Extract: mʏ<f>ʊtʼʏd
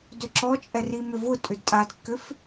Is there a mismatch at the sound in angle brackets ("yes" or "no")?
yes